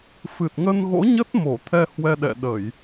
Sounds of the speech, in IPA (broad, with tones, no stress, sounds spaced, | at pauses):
f ɨ˨˩ t̚ ŋ ə˧ n ɣ o̰˧˥ ɲ ə˦˥ t̚ m o˧˩ t̪ʰ ɛ˧ h w ɛ˧ ɗ ɛ̰˧˨ ɗ ə˧˩˨ j